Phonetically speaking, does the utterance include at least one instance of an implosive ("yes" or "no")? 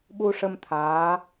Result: yes